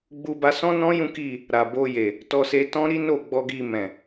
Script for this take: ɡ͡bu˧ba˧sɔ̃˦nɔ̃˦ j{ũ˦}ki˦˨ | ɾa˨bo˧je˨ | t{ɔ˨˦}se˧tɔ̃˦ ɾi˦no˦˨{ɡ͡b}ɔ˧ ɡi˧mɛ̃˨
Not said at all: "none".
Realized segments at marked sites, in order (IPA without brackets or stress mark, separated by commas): ũ˦, ɔ˧, ɡ͡b